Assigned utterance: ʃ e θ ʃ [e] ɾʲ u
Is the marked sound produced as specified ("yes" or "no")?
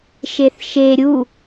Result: yes